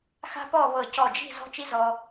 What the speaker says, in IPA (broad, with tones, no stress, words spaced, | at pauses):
xa̤˥pɔ˥˧βɤ˧˩ cɔ˧˩d͡ʒi̤˥˧ zɔ̤˥t͡ʃi˥zɔ˧